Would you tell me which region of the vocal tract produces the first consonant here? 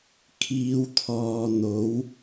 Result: velum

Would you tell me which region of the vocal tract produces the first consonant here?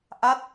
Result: throat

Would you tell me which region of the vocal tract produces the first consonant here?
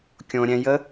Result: velum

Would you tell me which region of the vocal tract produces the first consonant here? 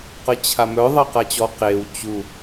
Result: uvula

